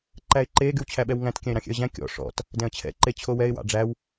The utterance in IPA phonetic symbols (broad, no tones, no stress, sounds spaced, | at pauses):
ǃ æ ɪ̯ ǃ e ɡ y w t͡ɕʰ æ ɓ ɛ w ŋ æ̃ t kʲ æ̃ ɪ̯ ɾ ɑ̃ xʲ ɛ̰ ə̯ ʑ æ̃ kʲ ɔ̰ ʂ ɔ̰ t | d ɛ̃ ə̯ t͡ɕʰ ɛ̰ ǃ e t͡ɕʰ o w ɛ ɪ̯ w ɑ̰ ɖ͡ʐ æ w